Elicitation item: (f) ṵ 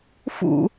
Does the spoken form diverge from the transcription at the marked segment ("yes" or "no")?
no